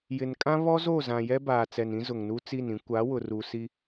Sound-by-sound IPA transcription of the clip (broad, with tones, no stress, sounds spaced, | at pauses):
j ɪ˨ n kʼ ã˦ β ɔ˦ z o˦˨ z ã˨ j ɛ˦ b aː˨ t͡s ɛ˨ n ĩ˦ z ʊ˨ ŋ n u˦ t͡s i˦˨ n ĩ˦ kʷ a˨˦ w ʊ˨ r u˨ s i˦